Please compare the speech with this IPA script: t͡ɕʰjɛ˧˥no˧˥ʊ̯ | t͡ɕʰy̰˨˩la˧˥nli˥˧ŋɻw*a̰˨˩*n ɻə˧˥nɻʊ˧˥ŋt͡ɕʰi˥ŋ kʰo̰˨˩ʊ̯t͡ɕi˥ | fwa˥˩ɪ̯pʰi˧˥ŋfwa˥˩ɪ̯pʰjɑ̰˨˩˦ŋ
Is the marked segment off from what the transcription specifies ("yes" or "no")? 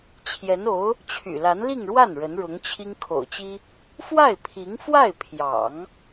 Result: yes